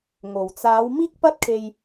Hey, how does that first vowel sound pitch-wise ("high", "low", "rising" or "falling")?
low